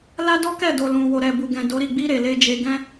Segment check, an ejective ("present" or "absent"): absent